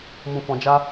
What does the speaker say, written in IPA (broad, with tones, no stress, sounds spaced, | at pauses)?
m ũ˧ f ɔ̃˧ d͡ʒ a˦